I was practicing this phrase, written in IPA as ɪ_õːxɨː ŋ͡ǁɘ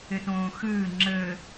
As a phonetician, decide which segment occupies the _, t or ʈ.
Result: t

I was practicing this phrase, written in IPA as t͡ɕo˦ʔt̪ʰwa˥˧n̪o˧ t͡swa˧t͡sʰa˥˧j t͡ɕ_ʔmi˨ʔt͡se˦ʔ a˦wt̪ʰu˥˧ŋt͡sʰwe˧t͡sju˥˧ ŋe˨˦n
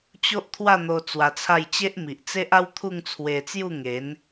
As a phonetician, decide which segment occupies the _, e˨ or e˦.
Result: e˦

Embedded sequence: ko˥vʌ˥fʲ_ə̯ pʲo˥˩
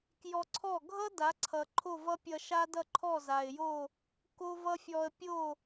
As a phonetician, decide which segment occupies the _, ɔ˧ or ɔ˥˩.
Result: ɔ˧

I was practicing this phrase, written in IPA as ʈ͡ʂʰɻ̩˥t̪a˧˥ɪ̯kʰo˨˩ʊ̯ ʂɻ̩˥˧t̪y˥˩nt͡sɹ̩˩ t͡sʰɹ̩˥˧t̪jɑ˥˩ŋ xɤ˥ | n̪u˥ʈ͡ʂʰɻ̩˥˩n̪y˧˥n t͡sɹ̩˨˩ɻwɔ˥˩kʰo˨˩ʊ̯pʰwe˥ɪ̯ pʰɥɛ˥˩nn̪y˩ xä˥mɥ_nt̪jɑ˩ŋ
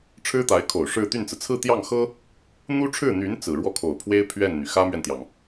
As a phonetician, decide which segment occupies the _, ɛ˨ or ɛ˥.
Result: ɛ˨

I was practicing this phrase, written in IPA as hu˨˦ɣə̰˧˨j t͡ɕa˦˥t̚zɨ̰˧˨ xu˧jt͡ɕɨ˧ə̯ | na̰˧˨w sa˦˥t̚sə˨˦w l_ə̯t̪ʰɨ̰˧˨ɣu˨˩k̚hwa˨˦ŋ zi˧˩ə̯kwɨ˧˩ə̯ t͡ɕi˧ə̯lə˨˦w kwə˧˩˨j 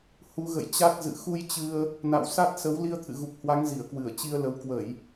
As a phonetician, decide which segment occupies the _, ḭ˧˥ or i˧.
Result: i˧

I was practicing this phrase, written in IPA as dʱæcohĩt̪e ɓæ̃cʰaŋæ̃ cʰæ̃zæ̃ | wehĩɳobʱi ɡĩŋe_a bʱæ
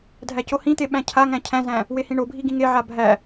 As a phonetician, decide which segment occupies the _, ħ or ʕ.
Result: ʕ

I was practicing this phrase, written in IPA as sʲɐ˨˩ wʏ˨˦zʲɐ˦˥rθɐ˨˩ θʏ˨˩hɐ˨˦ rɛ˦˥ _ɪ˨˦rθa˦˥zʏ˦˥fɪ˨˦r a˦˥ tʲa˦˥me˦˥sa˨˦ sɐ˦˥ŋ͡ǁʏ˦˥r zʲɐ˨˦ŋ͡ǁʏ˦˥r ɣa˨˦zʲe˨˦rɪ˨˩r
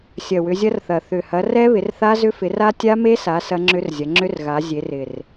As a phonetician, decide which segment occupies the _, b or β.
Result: β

